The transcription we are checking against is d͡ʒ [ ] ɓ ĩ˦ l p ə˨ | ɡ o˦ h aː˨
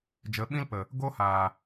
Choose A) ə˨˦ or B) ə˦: A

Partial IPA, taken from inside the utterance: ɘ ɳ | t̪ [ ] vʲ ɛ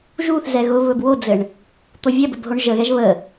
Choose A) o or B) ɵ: A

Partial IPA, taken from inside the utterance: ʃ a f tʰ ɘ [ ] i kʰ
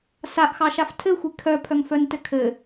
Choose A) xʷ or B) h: A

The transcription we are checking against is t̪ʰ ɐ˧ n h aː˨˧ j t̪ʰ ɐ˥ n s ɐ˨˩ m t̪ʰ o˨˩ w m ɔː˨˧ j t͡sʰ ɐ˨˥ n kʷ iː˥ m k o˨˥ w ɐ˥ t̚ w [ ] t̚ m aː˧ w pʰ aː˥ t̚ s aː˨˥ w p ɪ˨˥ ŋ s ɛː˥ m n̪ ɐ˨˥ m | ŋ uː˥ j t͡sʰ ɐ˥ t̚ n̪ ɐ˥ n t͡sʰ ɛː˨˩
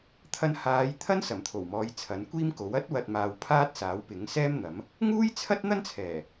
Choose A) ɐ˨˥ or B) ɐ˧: B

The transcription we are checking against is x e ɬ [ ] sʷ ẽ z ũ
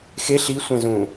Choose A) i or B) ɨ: A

